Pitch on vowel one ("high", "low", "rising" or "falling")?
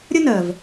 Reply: high